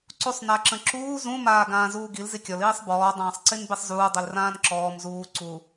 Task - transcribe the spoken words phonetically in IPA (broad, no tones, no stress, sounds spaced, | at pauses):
ǀ u sˤ n a ǁ ə̃ ǁ uː z ũ m aː ɡ ãː z uː ɡ i l z i kʲ ɔ l iː sˤ b ɔː dˤ ãː sˤ ǀ i n b i sˤ z uː dˤ i l r ãː n ǁ ɔː m z uː ǀ u